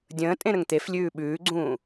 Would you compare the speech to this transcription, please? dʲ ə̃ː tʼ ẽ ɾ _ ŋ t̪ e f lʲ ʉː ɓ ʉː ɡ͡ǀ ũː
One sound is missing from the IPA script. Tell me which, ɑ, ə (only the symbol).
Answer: ə